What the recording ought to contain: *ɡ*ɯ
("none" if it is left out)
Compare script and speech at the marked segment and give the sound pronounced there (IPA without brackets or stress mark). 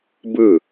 b